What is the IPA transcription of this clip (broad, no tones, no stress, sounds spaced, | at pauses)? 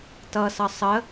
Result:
t ʌ s ʌ sˤ ə